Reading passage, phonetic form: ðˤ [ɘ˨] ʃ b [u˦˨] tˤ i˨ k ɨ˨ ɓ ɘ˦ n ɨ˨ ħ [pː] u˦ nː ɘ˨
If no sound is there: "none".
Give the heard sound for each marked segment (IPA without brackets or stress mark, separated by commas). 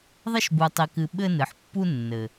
ɘ˦, u˨, pː